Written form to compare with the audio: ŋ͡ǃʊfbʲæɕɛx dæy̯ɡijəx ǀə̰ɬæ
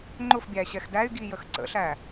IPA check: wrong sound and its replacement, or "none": none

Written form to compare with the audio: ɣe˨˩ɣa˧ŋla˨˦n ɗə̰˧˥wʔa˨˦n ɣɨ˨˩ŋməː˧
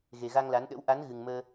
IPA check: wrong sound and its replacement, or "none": none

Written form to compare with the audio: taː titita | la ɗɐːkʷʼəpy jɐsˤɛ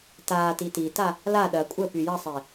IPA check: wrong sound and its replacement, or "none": none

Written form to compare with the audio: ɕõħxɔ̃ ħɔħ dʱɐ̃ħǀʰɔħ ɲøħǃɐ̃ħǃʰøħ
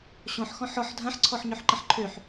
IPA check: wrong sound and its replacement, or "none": none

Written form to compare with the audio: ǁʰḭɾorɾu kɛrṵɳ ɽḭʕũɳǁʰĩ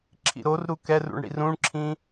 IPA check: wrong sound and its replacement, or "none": ʕ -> r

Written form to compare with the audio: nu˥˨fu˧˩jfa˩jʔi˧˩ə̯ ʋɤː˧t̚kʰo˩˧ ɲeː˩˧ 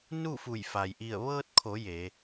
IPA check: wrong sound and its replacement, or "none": ɲ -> j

